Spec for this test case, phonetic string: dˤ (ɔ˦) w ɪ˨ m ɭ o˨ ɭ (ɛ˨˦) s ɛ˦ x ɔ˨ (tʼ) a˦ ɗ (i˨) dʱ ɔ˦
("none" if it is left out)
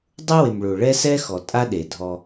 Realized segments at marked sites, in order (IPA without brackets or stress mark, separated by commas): ʊ˦, ɛ˦, tʼ, e˨